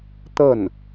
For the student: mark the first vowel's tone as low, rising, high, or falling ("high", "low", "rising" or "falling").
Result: falling